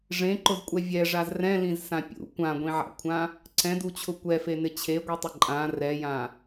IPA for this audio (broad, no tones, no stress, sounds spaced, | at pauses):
ʐ ẽ ǃ ʊ z kʷʼ ɛ vʲ ɛ ʐ a z r ɛ̃ l ĩ z s ã pʲ ṵ kʷ ã ɡʷ ĩ ʕ a̰ kʷʰ ã | ǀ ɛ̃ d u t͡ɕʰ ʊ kʷ ɛ f e n ɪ t͡ɕʰ e ɡʷ i tˤ ɪ ǃʼ ã r ɛ j ã